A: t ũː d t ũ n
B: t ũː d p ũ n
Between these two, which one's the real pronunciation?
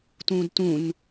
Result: A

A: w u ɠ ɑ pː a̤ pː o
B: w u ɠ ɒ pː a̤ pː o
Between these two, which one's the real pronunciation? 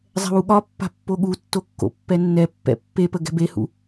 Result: B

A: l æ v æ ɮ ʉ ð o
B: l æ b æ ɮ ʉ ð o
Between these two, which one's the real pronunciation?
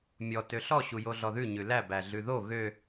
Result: B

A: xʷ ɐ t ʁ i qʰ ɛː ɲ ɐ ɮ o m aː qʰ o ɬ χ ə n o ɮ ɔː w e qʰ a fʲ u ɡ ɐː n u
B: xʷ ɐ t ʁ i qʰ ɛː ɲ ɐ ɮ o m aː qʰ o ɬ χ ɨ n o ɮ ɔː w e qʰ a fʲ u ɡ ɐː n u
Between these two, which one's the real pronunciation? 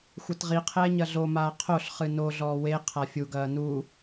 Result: B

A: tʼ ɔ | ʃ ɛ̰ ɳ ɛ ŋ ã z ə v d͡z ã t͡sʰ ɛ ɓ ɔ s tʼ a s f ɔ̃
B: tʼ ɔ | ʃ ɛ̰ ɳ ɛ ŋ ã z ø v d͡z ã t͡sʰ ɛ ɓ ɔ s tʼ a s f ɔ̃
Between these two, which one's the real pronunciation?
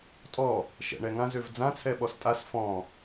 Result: B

